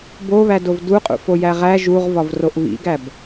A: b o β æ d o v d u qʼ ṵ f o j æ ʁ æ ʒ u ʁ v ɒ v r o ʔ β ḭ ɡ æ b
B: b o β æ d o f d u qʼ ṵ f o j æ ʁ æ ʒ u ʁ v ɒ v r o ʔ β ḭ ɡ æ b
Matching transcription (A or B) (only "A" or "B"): A